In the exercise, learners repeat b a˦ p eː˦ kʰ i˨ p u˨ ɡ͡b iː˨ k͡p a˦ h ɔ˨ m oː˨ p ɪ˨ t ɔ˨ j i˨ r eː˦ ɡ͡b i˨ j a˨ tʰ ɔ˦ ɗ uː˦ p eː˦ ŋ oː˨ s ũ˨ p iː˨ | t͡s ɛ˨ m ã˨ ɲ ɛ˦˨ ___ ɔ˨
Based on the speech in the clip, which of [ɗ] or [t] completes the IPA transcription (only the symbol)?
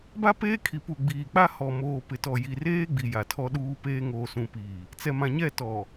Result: t